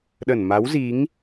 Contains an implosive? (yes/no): yes